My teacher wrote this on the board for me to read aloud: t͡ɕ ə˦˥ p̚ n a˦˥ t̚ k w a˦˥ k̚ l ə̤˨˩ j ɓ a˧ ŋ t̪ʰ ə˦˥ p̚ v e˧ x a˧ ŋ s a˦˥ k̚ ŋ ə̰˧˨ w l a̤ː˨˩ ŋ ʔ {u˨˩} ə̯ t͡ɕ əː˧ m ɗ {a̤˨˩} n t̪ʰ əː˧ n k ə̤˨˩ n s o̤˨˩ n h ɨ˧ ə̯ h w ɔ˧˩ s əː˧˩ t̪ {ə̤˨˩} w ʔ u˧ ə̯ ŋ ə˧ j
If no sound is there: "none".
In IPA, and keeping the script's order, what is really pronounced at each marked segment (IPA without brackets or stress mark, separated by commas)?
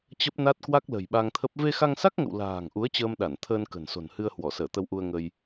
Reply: u˨˦, a˧˩, ə˧